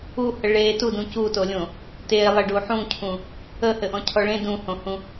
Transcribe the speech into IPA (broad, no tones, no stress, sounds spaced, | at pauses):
u h ə ɭ e t u d ũ c u t o lʲ õ | t e lˠ ɘ ɖ u ħ ũ cʰ ũ | ə h ɘ ʔ ɔ̃ cʰ ɔ ɭ ẽ d ũ h õ h ũ